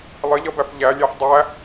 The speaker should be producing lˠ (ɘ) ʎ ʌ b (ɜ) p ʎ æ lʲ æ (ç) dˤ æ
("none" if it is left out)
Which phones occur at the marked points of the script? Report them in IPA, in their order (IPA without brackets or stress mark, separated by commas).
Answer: ɘ, æ, ħ